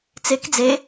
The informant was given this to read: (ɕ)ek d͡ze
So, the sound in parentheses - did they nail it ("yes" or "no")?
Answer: no